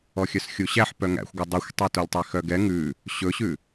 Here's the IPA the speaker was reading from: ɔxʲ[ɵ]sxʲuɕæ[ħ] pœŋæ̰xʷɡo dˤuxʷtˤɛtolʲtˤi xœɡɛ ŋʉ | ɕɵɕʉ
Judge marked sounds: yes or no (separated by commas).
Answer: no, yes